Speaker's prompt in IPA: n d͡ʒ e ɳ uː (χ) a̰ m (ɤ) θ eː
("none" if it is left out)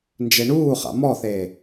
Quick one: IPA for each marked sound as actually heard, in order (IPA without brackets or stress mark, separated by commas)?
χ, ɔ